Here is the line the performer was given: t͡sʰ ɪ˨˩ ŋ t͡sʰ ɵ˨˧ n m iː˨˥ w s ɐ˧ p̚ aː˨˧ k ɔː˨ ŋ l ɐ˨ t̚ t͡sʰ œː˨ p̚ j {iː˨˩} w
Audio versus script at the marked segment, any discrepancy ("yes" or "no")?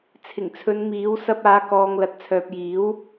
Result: yes